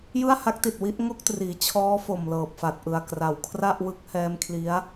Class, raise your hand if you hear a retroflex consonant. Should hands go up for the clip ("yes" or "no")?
no